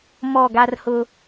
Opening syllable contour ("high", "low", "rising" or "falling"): falling